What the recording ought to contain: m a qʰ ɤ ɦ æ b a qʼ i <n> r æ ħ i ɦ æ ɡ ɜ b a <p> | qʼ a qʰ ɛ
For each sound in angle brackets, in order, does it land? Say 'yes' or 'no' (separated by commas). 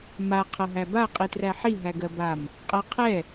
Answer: no, no